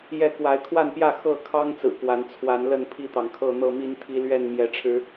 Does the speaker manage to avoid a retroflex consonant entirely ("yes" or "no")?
no